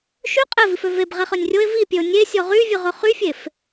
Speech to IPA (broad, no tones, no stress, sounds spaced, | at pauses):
ʃ y qʼ ɛ v i f ø v e b ʁ ɛ χ œ nʲ rʲ o e̯ v i pʲ ø o̯ nʲ e sʲ ɔ ʁ y vʲ ɵ ʁ ɵ χ y fʲ e f